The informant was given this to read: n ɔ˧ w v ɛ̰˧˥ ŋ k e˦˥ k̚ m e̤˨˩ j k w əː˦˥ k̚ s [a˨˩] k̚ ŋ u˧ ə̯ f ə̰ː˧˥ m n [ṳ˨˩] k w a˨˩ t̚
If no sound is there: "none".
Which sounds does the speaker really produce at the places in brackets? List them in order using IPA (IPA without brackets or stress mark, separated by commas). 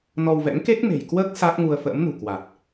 a˦˥, ṳ˨˩